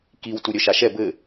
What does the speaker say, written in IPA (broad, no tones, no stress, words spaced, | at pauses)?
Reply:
kiw tuɾʲœʃaʃɛ bɘ